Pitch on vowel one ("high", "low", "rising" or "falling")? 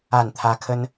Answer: falling